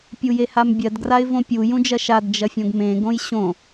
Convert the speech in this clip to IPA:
pʲ u j e h a m bʲ ɜ d ɡ r a ɪ̯ v õ pʲ u j ũ d͡ʒ ɐ ʃ a d d͡ʒ ɐ fʲ õ ɡ m ẽ ɡ õ j ɕ õ

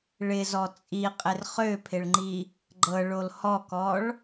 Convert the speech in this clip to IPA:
ɭ ɪ z ɔ t͡sʼ i qʼ ɪ r χ ø pʰ ɪ ɭ ŋ͡ǃ i | ɡ͡ǃ ɤ ɭ o l h ɔ k ɔ ɭ

